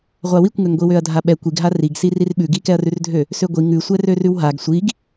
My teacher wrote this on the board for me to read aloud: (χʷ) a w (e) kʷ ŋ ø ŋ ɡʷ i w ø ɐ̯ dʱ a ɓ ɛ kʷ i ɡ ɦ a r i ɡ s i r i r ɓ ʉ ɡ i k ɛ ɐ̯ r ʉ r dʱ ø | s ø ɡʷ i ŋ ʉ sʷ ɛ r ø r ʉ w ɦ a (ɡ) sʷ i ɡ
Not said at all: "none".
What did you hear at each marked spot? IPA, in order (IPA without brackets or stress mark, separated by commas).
ʁʷ, i, ɡ